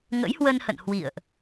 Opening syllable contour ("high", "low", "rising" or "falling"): rising